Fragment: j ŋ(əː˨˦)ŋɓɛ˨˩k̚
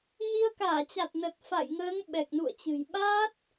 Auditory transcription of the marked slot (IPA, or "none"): əː˨˦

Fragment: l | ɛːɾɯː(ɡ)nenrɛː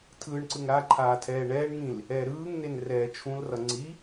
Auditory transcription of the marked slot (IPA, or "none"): ŋ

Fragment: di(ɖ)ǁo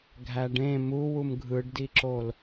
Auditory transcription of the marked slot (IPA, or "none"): none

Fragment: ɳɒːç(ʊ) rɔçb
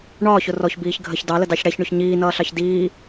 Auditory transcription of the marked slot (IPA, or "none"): ʊ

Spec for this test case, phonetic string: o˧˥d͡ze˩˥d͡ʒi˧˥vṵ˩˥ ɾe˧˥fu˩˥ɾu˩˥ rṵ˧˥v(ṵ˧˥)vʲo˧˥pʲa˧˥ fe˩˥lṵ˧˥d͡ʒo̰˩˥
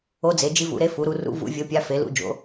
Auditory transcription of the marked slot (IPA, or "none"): ṵ˧˥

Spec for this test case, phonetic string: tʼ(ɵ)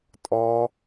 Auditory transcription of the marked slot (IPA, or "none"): ɔ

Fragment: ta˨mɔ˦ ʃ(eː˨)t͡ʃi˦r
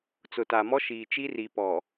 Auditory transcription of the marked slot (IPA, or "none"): iː˨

